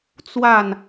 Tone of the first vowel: falling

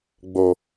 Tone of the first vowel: low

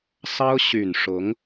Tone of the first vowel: high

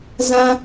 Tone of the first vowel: high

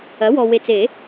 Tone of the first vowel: rising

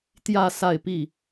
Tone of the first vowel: falling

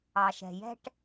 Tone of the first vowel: low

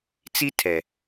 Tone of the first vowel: high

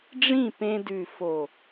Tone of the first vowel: falling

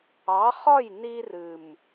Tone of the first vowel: rising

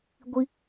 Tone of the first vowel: high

